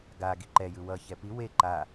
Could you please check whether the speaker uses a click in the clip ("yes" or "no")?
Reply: yes